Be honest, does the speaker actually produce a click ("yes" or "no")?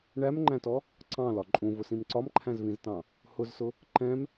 yes